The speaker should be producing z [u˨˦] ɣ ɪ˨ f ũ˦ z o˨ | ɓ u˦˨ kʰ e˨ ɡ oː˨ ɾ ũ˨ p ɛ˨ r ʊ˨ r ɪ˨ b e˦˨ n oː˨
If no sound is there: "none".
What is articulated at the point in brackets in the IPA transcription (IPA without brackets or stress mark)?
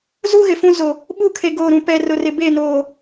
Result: u˦